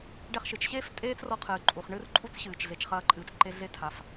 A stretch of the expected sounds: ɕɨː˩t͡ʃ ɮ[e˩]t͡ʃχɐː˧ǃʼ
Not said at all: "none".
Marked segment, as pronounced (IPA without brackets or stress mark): e˩